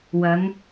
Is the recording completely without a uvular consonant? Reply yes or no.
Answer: yes